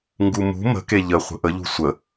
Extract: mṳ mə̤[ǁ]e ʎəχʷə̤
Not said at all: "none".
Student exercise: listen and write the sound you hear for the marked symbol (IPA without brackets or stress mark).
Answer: k